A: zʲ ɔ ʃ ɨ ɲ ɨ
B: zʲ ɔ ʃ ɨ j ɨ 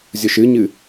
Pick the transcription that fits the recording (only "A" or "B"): A